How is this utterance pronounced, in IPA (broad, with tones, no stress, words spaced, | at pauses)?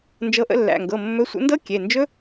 nd͡ʒɤ˨˦ʔə̰˨˦lːæ̰˩˧˩ŋɡɤ˩˧˩ mːɵ˨˦sʷə̰˨˦ndɤ˦˥ kʲe˩˧˩nd͡ʒɵ˦˥